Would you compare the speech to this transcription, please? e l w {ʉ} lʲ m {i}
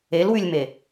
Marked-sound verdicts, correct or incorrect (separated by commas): correct, incorrect